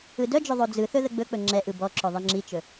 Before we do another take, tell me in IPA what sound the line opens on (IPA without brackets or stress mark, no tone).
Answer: ɯ